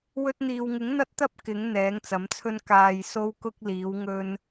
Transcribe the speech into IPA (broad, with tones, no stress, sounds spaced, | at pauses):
w ɵ˧ t̚ n̪ iː˨ w ŋ ɪ˨˥ ŋ n̪ ɐ˥ t̚ t̪ ɐ˥ p̚ k ɪ˨˥ ŋ n̪ ɛː˨˥ ŋ t͡s ɐ˨˥ m t͡sʰ ɵ˥ n k aː˨ j s o˥ w k ʊ˥ k̚ l iː˨˥ w ŋ ɵ˥ n